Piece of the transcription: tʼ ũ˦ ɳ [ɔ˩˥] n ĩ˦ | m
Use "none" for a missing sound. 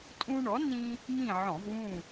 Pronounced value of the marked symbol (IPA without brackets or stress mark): ɔ˩˥